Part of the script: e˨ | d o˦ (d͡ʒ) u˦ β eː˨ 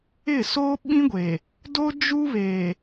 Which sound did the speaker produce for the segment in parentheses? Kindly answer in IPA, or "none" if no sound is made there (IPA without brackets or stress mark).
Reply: d͡ʒ